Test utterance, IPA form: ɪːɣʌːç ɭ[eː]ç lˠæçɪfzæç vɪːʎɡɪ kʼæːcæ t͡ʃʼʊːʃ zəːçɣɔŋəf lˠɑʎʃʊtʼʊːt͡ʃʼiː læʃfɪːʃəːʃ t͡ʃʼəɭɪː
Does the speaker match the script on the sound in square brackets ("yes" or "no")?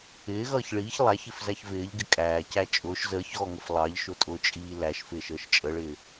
no